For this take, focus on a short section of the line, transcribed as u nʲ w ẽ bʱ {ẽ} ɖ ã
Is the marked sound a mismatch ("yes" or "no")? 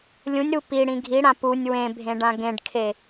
no